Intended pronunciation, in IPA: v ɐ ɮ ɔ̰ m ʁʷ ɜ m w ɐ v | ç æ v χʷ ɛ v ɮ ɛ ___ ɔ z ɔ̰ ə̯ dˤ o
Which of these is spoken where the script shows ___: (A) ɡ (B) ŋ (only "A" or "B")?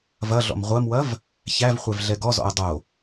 A